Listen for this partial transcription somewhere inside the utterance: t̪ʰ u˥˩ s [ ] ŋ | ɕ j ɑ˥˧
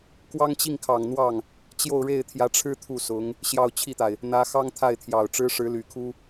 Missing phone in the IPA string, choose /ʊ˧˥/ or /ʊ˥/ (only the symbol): ʊ˧˥